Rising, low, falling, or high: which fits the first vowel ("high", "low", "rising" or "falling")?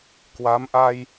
rising